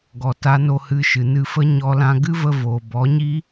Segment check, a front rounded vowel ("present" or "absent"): absent